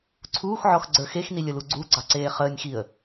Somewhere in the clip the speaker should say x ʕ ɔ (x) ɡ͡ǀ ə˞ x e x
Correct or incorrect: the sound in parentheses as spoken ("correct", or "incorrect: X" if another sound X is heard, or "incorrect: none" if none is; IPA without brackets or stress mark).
correct